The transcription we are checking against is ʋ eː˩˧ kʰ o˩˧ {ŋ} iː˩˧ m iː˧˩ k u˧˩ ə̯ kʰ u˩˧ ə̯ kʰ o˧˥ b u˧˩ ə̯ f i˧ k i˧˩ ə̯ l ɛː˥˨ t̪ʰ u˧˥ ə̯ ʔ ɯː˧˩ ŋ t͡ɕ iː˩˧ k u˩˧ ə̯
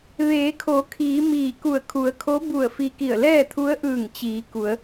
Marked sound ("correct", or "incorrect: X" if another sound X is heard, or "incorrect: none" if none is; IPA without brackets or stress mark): incorrect: kʰ